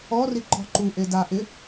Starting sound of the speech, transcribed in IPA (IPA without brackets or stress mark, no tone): ɔ